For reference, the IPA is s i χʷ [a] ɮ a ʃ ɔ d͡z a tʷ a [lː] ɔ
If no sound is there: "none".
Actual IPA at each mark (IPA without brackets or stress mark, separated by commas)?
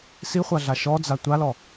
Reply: a, l